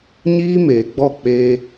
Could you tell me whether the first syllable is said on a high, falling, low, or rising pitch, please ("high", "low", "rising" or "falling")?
high